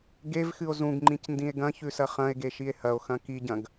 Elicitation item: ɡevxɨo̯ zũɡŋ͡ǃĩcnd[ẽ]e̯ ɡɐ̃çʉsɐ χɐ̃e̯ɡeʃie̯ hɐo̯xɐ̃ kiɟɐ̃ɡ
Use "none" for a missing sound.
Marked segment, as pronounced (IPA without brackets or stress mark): ĩ